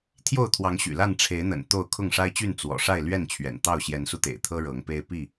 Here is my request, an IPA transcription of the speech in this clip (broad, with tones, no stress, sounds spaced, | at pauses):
t̪ʰ j o˥˨ ʊ̯ t̪ʰ w ɑ˨˦ ŋ ɕ y̰˨˩ l a˥˨ n ʈ͡ʂʰ e˨˦ ɪ̯ n̪ ə̰˨˩ n t̪ o˥˨ ʊ̯ kʰ ʊ˥˨ ŋ ʂ a˦ ɪ̯ t͡ɕ y˥˨ n t͡s w ɔ̰˨˩ ʂ a˥˨ ɪ̯ l ɥ ɛ˥˨ n t͡ɕʰ ɥ ɛ̰˨˩ n t̪ ɑ˥˨ ʊ̯ ɕ j ɛ˨˦ n s u˧ t̪ ḛ˨˩ ɪ̯ t̪ʰ ɤ˦ ɻ ɤ˨˦ ŋ p e˦ ɪ̯ p i˥˨